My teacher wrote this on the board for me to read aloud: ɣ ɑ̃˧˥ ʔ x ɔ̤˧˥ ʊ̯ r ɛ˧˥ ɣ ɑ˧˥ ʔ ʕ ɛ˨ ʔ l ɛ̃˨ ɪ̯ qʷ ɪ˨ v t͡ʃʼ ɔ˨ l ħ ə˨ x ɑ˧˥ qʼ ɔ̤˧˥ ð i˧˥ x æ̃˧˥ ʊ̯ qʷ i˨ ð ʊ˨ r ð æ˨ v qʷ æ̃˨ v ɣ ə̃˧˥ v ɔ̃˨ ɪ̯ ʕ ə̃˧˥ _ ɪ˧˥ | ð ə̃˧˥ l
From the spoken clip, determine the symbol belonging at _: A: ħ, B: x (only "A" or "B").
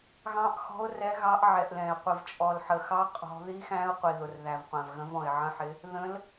A